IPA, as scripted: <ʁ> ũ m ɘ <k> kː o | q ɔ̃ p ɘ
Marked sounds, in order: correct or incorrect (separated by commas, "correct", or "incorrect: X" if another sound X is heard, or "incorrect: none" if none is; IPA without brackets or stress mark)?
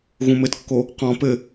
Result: incorrect: ɣ, incorrect: t